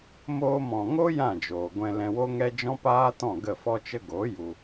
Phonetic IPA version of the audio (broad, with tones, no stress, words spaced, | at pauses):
moː˧mɔ̃˨ŋo˦ jã˦˨d͡ʒoː˨ ɡʷɛ̃˧lɛ̃˧wo˦ŋɛ˦ d͡ʒɔ̃˦paː˦tɔ̃˦˨ ɡə˦˨fɔ˦t͡ʃə˦ ɡo˨˦ ju˧